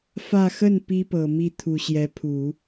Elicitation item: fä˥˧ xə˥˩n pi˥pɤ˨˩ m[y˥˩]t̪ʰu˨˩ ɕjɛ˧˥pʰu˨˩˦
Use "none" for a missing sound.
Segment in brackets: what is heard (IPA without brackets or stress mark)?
i˥˩